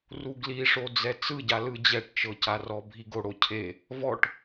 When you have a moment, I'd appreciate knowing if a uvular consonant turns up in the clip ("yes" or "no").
no